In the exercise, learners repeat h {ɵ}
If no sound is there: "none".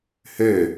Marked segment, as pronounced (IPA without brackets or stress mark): ø